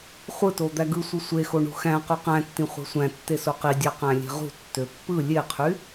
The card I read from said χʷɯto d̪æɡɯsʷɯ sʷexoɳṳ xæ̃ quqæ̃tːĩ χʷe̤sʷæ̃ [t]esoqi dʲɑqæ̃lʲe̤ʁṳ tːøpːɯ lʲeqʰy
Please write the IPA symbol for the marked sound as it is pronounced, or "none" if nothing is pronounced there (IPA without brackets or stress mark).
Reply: tː